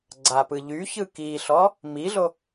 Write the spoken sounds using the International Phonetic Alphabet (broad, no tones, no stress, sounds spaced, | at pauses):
ɡ͡ǀ a p ɯ ʎ y ç ɯ k i ɬ ɔ | m i ɮ o